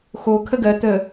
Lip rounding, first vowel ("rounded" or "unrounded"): rounded